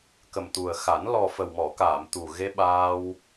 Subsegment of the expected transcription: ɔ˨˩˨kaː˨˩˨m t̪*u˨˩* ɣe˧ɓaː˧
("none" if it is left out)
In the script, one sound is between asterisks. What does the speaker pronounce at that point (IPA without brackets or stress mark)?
u˨˩